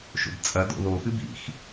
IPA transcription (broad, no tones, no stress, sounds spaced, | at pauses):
ʃ o̰ b t͡sʼ ɐ d o̰ ð o x ɨ b ḭ x